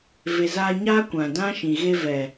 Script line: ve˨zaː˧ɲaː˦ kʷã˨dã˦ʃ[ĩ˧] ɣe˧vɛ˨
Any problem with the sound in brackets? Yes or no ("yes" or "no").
yes